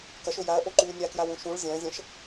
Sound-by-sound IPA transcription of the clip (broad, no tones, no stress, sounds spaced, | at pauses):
k ɐ ʃ ɵ j a ɐ̯ ʔ o ǃ ʉː nʲ a k j a w ũ ʃ ũ ɭ zʲ ɐ̃ː zʲ ɐ̃ ʃ